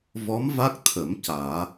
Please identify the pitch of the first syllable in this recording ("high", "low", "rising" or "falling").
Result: rising